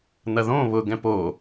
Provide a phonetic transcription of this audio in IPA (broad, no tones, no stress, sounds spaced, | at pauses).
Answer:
n̪ ɐ ð õ β ʊ ɡ ɛ̃ p o